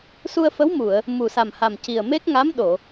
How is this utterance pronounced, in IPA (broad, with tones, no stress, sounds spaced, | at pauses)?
s u˧ ə̯ f ə˧˥ w m u˨˩˨ ə̯ | m u˨˩ s a˨˩ m h a˨˩ m c i˨˩ ə̯ m e˦˥ k̚ ŋ a˧˥ m ɗ o˨˩˨